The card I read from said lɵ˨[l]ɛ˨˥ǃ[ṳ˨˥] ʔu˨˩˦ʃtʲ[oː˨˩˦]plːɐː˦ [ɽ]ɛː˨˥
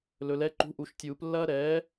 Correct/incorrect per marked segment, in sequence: correct, correct, incorrect: uː˨˩˦, incorrect: ɾ

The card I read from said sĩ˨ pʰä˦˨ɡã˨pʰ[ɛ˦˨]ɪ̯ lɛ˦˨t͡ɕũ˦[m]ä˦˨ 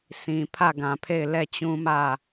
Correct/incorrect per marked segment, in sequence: incorrect: e˦˨, correct

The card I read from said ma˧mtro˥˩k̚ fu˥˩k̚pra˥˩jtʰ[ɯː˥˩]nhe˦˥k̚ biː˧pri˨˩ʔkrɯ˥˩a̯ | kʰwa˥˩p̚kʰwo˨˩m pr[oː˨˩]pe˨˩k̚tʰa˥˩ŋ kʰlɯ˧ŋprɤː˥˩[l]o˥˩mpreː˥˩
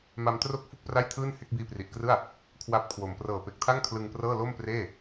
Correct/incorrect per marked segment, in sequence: correct, incorrect: ɤː˨˩, correct

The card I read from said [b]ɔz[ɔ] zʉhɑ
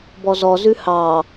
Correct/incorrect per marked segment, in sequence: correct, correct

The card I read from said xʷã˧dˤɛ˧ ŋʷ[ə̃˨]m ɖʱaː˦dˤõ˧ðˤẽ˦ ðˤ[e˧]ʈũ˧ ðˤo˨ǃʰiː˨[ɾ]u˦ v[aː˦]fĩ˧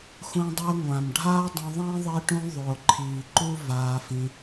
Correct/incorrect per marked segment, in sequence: incorrect: ã˨, correct, incorrect: ǃ, incorrect: aː˧

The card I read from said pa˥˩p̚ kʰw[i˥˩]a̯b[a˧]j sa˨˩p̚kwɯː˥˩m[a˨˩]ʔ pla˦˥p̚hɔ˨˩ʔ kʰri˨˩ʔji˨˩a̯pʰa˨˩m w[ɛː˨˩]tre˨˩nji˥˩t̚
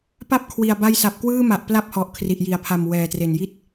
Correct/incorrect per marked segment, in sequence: incorrect: i˨˩, correct, correct, correct

